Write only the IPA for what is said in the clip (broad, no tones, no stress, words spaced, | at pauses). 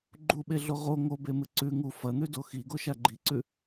ɡ͡ǃuɓeɮo ʁo ŋobemɨ ǀʉ ŋu fɐn̪ʉdo xiɡoʃa ɡ͡ǃiǀʉ